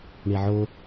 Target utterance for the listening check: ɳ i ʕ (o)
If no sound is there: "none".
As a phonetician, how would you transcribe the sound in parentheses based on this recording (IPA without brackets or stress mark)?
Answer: o